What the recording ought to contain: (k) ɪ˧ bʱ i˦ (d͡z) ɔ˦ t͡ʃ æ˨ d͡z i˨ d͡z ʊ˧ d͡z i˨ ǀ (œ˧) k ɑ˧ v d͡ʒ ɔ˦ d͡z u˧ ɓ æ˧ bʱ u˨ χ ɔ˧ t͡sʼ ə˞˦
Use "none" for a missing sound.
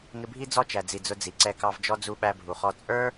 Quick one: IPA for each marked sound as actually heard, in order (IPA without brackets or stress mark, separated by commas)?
ŋ, d͡z, ɛ˧